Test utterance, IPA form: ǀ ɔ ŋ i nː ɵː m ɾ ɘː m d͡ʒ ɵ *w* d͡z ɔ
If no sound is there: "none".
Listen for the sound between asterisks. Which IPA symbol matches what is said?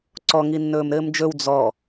w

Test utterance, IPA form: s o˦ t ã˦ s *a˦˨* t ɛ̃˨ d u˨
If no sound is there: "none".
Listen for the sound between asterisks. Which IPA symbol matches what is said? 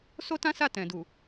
a˦˨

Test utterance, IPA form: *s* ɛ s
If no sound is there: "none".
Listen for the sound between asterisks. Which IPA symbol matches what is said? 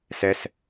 s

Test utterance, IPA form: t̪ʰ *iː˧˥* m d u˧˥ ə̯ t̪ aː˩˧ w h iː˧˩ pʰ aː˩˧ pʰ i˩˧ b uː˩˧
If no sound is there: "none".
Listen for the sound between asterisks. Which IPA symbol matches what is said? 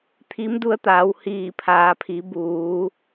i˧˥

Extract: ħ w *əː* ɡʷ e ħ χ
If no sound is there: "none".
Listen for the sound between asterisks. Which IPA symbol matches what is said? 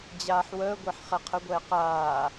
əː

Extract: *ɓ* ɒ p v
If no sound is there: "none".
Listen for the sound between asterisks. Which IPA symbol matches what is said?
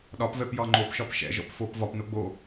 ɗ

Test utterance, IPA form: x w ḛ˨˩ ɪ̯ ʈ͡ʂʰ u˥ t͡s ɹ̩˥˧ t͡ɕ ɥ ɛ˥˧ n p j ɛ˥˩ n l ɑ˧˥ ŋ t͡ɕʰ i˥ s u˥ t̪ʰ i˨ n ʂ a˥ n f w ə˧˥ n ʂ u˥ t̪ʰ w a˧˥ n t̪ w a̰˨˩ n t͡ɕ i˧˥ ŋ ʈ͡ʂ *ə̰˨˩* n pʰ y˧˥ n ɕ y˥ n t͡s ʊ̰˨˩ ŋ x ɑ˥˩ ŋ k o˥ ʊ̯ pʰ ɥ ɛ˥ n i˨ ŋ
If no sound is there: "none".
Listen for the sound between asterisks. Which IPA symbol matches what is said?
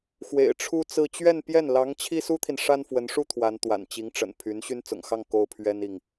ə̰˨˩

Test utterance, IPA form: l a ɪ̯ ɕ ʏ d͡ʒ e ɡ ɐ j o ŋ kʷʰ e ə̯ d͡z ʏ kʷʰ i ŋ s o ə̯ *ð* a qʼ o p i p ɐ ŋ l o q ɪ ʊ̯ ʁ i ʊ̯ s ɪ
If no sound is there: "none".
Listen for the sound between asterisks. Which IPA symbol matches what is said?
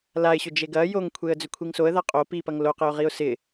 ð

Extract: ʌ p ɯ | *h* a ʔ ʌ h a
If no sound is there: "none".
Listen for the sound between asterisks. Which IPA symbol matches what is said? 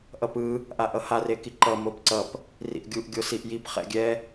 ʔ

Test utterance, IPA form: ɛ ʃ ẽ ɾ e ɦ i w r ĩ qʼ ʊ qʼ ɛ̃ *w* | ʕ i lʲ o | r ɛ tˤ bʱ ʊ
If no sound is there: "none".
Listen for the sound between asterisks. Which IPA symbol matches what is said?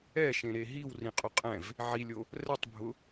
v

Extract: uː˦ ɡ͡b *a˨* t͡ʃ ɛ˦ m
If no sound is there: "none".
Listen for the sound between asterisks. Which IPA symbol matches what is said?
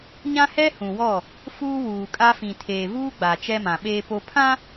a˨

